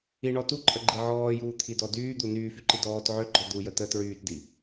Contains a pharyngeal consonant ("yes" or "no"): yes